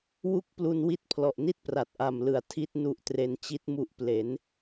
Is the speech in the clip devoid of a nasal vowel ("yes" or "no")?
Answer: yes